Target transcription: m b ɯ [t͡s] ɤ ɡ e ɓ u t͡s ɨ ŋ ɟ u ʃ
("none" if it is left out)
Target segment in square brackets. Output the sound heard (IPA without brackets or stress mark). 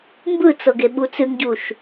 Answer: t͡s